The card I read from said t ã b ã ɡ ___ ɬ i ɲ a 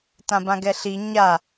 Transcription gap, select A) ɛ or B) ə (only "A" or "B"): A